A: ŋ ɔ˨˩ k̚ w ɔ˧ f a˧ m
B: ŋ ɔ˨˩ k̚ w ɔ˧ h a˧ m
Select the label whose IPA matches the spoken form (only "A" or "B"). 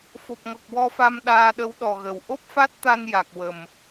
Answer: A